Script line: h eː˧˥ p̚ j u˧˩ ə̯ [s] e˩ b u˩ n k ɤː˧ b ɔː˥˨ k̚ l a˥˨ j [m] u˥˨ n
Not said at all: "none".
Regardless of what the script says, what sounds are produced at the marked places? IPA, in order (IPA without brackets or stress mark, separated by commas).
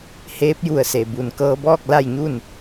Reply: s, ɲ